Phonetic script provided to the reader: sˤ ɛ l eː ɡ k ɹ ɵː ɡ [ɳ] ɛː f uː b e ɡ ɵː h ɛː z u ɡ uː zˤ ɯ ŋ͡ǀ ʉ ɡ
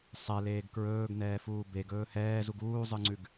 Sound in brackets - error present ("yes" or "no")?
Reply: yes